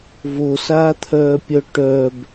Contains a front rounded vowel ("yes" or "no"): yes